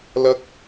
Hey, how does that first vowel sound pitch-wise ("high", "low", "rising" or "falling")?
high